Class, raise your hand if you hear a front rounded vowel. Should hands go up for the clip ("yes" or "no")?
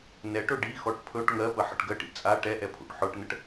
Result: no